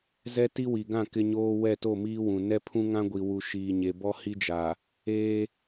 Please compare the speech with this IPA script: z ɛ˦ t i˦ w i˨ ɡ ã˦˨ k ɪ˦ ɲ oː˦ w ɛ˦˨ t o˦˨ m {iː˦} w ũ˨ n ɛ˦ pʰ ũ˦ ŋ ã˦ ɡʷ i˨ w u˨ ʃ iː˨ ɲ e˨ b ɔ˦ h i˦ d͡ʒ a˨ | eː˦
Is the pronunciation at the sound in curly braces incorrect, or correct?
correct